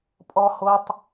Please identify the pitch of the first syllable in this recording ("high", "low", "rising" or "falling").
high